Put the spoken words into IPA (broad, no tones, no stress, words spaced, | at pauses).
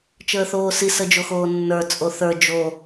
t͡ʃəːθoːsi səd͡ʒoxoːnːə˞ t͡sʼoθə˞ d͡ʒo